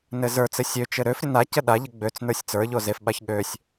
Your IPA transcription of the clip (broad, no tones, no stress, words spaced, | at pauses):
nɘzə˞t͡sɘ sʲøt͡ʃɘ ɾøfɾʲə nacə ɗaʎə ɡ͡bøt͡s nə˞sʲt͡sə˞ʎo zefɓaç ɠøsʲ